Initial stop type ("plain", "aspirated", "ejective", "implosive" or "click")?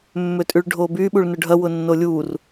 ejective